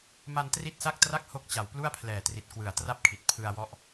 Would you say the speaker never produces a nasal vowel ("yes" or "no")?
yes